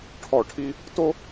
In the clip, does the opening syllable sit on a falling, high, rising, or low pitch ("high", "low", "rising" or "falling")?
falling